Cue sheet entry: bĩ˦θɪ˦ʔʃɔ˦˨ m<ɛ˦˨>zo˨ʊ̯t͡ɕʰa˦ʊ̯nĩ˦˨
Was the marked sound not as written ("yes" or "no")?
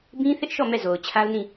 no